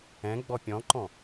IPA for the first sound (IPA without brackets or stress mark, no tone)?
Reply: ɛ̃